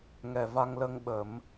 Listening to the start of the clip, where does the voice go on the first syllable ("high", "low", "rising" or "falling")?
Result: low